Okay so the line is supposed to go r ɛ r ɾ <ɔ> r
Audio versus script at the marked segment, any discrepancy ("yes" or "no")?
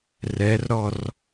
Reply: no